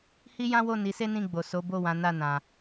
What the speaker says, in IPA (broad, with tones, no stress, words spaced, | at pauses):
hi˦jã˦wo˦˨ ni˨˦se˦nĩ˦˨ɡ͡bo˨ so˨˦bo˦˨wã˨˦ na˦˨nã˨